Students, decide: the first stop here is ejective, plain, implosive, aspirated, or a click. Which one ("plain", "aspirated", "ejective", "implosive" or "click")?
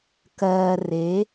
plain